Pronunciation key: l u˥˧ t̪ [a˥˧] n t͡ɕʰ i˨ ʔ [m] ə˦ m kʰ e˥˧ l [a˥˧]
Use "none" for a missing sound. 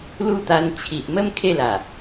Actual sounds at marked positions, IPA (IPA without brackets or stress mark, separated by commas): a˧, m, a˨˩